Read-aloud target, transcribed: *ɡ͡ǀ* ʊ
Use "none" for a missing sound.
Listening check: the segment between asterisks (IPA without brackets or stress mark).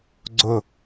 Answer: ɡ͡ǀ